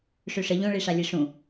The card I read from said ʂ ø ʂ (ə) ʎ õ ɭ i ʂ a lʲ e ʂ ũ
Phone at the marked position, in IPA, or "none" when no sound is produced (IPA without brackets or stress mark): ə